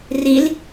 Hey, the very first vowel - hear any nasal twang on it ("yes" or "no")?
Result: no